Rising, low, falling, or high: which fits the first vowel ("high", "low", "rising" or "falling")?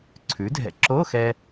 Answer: rising